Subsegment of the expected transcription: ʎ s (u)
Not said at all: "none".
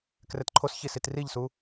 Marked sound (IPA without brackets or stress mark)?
u